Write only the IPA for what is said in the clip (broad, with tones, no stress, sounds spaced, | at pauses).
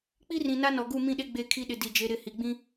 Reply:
k͡p i˦ r ĩ˨ n a˦ n ɔ˨ ɡ u˦˨ m ĩ˦˨ ɗ e˦ ɡ͡b e˦ kʰ i˦ ɗ ɪ˨ d i˨ d͡ʒ e˦ ɾ ɪ˦˨ h i˨ ɡ͡b ĩ˦